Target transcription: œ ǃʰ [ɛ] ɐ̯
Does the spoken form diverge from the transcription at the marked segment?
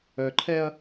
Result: no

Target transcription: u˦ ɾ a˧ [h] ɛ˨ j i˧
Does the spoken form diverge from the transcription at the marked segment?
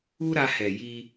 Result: no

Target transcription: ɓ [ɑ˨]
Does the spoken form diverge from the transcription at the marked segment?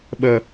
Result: yes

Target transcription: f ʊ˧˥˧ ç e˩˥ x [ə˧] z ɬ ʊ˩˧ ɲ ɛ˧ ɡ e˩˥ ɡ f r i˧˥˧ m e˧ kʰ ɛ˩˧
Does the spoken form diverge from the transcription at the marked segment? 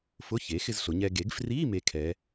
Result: yes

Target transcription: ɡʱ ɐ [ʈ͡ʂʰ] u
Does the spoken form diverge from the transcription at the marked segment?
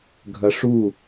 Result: yes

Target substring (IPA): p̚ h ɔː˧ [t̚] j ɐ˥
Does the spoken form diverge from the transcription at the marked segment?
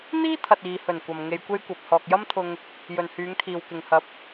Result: yes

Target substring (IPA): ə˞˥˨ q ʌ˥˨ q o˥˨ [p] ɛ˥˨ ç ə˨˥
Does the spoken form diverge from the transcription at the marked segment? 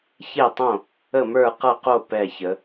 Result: no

